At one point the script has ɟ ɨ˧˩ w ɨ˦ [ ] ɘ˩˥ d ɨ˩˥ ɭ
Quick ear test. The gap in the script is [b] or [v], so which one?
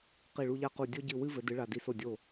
v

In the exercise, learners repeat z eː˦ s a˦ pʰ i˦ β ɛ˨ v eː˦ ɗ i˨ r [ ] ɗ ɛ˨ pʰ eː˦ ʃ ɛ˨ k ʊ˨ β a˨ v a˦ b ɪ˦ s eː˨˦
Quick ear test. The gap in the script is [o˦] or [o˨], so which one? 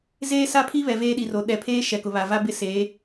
o˨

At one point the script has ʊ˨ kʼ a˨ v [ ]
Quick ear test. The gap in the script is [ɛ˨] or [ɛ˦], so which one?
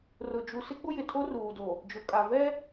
ɛ˦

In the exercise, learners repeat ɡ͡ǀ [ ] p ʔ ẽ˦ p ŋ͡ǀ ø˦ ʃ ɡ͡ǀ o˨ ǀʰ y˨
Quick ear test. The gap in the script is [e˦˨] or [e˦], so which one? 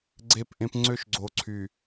e˦˨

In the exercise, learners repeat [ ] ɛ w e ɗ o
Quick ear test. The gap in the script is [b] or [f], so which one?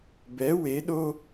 b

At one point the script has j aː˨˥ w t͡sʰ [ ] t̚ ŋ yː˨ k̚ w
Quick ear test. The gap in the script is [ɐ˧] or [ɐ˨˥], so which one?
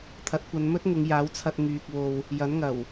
ɐ˧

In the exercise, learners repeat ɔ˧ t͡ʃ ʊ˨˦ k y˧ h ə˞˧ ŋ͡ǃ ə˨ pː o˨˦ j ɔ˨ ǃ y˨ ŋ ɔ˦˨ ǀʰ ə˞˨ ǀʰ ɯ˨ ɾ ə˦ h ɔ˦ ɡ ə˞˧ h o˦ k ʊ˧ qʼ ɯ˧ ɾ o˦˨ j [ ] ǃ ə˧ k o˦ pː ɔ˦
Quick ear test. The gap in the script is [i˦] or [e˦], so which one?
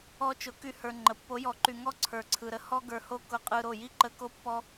i˦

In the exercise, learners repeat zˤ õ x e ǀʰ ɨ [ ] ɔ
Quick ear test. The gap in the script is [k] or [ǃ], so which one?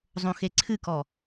k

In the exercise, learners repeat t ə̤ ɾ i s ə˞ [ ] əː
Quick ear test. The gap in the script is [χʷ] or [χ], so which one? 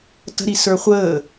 χʷ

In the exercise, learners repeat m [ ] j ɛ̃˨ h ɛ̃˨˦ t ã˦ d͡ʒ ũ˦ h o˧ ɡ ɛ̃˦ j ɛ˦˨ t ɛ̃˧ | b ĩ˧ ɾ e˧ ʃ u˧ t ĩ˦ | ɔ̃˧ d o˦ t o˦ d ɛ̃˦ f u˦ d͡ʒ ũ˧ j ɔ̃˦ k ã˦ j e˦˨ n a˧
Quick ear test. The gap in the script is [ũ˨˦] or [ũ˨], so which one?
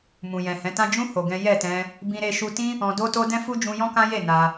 ũ˨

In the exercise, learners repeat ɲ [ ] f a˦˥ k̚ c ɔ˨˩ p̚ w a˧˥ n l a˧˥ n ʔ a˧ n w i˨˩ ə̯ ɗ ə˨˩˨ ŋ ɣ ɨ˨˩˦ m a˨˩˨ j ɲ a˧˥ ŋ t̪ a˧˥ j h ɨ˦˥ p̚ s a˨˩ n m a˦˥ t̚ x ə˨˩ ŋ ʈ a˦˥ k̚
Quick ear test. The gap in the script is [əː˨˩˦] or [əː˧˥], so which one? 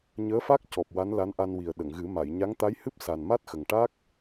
əː˧˥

